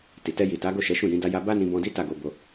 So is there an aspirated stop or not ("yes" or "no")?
no